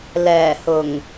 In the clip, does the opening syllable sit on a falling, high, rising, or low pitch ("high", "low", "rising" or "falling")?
low